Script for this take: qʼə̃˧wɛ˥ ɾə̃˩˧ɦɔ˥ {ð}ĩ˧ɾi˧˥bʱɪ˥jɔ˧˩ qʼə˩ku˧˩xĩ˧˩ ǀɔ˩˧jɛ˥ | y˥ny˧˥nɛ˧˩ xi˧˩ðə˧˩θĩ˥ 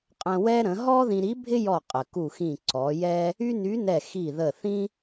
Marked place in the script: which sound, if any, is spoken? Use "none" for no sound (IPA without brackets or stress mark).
ð